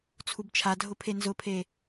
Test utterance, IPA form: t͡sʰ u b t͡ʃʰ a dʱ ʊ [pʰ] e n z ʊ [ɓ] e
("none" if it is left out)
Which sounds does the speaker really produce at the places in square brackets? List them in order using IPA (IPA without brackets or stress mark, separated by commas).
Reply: pʰ, pʰ